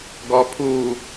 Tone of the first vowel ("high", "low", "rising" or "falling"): low